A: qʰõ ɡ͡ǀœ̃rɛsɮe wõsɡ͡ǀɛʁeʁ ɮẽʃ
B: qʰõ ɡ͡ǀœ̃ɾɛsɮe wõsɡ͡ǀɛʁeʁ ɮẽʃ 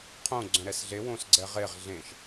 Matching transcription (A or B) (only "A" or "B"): B